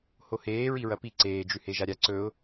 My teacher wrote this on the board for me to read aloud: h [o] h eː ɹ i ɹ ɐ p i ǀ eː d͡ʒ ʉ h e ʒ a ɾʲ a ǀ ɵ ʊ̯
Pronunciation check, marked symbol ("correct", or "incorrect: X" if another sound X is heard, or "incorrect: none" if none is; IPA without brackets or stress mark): correct